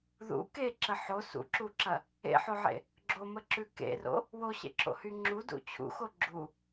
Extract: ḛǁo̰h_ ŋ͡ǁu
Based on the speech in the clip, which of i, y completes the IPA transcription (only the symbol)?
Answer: y